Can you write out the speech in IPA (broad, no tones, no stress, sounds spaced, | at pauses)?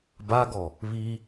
b a ɡ ɔ | β i